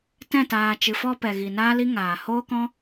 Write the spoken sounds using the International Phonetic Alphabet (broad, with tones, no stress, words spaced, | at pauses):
tɛ̃˦˨ taː˨ t͡ʃɨ˨fɔ˧ pɛ˨ɣi˨ naː˦li˦ ŋaː˨hoː˦kɔ̃˦